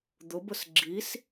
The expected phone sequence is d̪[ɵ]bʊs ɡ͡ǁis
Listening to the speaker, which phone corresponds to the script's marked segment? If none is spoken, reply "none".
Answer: ʊ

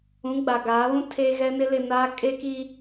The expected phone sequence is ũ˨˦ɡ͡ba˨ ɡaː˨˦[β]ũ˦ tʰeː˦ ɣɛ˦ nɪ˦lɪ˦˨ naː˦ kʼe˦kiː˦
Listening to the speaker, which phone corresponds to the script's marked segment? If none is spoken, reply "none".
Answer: β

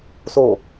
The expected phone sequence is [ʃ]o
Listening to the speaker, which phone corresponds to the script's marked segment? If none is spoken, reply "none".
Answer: s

